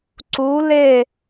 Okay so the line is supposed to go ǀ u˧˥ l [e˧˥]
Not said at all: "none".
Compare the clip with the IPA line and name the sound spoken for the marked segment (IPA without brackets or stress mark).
e˥˧